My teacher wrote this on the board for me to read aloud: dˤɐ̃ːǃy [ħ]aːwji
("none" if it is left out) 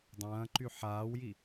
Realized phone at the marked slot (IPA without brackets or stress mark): ħ